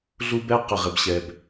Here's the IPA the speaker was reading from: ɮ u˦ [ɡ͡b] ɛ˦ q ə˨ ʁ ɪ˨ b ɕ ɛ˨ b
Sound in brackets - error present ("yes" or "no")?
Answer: yes